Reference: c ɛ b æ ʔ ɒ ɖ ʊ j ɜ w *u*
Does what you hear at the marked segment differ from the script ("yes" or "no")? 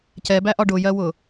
yes